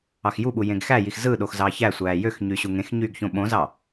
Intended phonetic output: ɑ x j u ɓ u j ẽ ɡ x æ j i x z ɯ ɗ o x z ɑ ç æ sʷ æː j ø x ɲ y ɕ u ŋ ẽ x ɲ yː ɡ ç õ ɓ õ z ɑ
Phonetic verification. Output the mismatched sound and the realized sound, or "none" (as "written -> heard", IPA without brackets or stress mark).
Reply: none